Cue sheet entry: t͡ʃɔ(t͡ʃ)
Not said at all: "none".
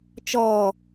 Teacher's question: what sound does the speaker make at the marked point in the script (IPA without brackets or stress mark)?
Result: none